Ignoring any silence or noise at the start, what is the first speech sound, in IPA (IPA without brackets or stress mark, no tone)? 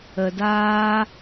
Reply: ə